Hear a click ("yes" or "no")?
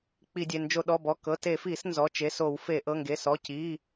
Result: no